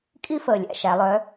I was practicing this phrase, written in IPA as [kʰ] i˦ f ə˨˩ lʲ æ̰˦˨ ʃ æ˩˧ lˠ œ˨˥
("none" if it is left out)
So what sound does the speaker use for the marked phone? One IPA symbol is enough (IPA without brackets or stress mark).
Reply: kʼ